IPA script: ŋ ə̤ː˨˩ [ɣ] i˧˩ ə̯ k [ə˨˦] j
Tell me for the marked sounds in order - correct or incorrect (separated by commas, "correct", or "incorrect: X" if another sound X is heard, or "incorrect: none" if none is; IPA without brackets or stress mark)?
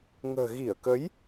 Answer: correct, correct